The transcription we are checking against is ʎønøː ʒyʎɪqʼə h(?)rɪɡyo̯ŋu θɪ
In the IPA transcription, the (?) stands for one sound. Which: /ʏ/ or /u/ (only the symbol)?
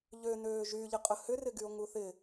ʏ